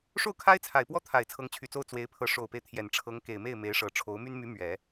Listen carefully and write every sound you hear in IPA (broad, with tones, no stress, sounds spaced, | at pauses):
ʂ o˥˩ ʊ̯ kʰ a˥ ɪ̯ t͡sʰ a˨˩ ɪ̯ p w ɔ˥ t̪ʰ a˨˩ ɪ̯ t͡sʰ ɤ˧˥ ŋ t͡ɕʰ y˨˩ t͡s o˥˩ ʊ̯ t͡s w e˧˥ ɪ̯ pʰ ɤ˧˥ ʂ o˨˩ ʊ̯ p e˦ ɪ̯ t̪ʰ j ɛ˨˩ n ʈ͡ʂʰ ɤ˧˥ ŋ k e˨˩ ɪ̯ m e˥˩ ɪ̯ m e˧˥ ɪ̯ ʂ ɤ˨˩ ʈ͡ʂʰ o˧˥ ʊ̯ m y˥ n m y˧˥ m ɥ ɛ˨˩˦